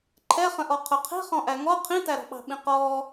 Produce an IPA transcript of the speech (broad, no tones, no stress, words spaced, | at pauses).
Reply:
ǃʰɛχə̃ʔɔ qʰʊqʰi̤ χɔ̃ʔæŋɔ qʰĩtæɾɔ̤ɓɑ̤ ɓĩqɔː